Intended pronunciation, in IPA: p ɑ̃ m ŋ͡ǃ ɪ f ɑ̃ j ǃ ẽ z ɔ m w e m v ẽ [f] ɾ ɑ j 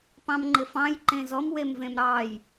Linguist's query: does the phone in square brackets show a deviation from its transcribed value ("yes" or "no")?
yes